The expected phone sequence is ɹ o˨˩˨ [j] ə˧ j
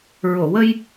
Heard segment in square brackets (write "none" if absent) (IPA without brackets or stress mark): w